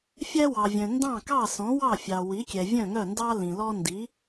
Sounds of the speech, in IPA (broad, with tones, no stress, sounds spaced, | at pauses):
fʲ æ˥ w ɑ˩ vʲ œ̃˩ n d ɑ̃˥˩ k ɑ˥˩ s ɔ̃˩˥ w ɑ˥˩ fʲ ɑ˩ w i˩˥ kʲ ɛ˩ vʲ œ̃˥˩ ŋ œ˥˩ n d ɑ˥ l ĩ˩ l ɔ˥ n d i˩˥